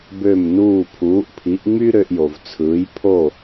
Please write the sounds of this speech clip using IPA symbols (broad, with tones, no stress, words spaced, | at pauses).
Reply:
bø˥˩mnuː˥˩ pʰuː˩˥ʔpʰi˩˥ʔŋ͡my˥ ɾø˧ʔjo˩v t͡sʰɯː˩˥jpʰo˥˩